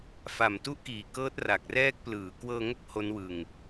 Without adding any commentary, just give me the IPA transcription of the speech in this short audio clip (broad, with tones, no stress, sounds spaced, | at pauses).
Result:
f a˨˩ m t u˥˩ ʔ k iː˨˩ k ɤː˦˥ t̚ r a˨˩ k̚ r ɛː˦˥ k̚ p l ɯː˩˦ k w ɤː˧ ŋ o˦˥ k̚ h o˦˥ n w ɯ˧ ŋ